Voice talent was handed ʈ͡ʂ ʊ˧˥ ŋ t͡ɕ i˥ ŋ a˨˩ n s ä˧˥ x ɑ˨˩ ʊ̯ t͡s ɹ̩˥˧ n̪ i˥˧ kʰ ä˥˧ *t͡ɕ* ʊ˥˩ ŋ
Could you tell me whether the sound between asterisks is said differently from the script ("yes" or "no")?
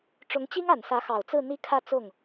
yes